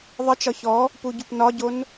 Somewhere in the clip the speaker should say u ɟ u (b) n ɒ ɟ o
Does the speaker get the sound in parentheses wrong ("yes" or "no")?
yes